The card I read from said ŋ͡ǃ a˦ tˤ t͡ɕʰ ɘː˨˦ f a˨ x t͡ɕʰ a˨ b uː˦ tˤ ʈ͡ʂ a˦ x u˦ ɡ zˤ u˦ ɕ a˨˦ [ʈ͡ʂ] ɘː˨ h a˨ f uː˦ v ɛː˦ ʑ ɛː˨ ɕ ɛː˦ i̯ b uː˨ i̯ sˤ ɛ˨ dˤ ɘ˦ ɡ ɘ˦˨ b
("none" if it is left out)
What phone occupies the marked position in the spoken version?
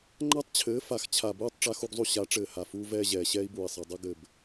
ʈ͡ʂ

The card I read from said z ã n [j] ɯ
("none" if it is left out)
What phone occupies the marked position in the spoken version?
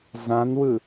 w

